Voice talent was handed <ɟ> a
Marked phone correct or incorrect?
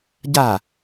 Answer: correct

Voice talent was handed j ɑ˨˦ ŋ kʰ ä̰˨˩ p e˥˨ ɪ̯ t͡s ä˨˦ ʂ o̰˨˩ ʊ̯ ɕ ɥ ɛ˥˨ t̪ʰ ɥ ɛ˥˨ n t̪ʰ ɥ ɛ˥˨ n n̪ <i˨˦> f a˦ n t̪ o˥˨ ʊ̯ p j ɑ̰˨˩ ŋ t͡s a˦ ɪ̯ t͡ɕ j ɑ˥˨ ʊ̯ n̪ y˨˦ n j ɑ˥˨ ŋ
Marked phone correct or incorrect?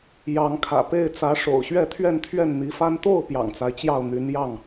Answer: correct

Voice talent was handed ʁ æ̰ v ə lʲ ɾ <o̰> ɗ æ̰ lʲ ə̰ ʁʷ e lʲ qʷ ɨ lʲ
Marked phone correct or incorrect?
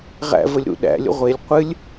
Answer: incorrect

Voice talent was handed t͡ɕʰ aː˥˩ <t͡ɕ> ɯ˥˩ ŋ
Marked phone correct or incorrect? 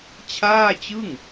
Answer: correct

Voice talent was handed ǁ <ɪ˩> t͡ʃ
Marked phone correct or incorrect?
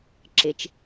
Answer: correct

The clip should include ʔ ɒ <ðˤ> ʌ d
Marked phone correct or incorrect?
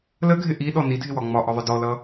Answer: correct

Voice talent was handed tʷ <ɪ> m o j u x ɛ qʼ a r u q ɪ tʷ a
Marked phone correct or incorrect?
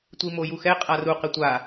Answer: incorrect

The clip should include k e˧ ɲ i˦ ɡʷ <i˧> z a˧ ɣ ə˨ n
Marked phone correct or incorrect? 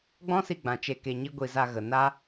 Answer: correct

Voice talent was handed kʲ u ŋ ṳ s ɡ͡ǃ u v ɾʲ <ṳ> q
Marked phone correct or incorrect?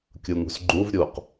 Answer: incorrect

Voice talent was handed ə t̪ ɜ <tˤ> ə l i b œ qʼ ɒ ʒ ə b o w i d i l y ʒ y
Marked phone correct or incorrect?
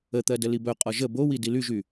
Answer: incorrect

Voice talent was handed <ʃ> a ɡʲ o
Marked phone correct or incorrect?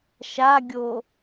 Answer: correct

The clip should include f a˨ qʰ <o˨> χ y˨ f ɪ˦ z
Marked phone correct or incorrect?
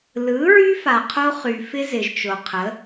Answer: incorrect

